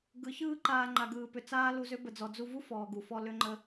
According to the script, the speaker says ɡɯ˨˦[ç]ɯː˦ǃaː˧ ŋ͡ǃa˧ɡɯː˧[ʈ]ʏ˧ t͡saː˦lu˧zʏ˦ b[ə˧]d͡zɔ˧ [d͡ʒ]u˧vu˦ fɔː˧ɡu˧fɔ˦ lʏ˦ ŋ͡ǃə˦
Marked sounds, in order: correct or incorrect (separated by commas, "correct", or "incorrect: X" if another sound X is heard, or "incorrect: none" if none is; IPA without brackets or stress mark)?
correct, incorrect: p, correct, incorrect: d͡z